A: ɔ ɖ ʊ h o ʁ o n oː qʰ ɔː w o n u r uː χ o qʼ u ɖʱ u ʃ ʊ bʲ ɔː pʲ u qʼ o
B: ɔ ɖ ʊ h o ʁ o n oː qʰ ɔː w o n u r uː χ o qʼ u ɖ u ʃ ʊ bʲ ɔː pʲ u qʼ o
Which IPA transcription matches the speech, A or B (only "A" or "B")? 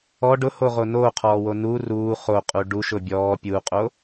B